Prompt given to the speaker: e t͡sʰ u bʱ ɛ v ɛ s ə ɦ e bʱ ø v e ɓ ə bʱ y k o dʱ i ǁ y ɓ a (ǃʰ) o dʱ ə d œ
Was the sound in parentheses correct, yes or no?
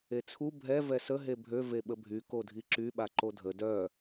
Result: no